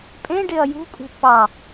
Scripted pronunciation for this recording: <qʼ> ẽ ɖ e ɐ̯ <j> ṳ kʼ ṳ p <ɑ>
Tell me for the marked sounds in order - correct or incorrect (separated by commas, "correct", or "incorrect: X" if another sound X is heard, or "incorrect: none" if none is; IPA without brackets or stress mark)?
incorrect: pʼ, correct, correct